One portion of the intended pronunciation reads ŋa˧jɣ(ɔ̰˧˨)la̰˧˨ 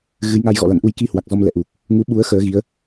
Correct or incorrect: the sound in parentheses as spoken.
correct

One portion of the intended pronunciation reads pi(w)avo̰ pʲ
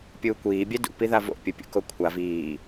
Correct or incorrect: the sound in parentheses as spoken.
incorrect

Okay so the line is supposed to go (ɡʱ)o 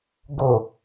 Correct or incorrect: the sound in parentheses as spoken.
incorrect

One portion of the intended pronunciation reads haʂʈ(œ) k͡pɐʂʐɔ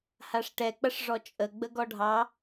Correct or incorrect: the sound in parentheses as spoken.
incorrect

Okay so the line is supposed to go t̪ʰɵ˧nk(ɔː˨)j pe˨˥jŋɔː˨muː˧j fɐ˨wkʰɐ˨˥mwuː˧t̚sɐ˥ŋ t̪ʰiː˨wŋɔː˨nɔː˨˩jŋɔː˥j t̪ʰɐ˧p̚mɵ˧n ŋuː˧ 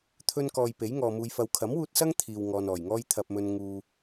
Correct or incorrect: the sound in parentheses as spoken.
correct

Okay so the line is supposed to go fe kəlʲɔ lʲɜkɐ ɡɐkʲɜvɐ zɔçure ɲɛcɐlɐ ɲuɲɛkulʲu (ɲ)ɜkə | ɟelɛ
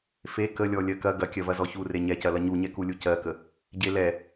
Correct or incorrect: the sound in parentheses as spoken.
incorrect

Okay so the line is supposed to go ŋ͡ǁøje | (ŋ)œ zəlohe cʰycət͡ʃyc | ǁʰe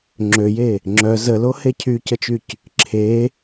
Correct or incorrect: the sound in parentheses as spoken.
incorrect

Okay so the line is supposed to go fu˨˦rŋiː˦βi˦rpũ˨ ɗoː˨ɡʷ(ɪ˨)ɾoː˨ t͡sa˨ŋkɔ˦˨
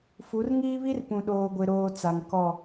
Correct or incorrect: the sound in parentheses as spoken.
correct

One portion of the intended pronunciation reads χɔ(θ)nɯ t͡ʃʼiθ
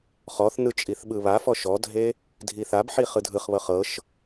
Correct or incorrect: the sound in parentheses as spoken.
correct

